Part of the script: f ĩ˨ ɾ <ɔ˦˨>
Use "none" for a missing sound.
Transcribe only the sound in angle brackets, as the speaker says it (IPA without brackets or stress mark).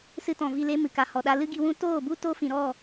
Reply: ɔ˦˨